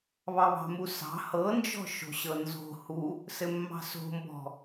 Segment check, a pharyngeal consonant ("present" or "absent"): absent